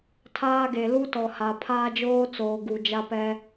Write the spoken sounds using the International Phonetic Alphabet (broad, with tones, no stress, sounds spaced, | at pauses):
tʰ aː˦ ɡ e˨ l u˦ t ɔ˨ h a˨ pʰ aː˦ d͡ʒ oː˦ t͡s oː˨ ɡ u˨ d͡ʒ a˦ p ɛ˦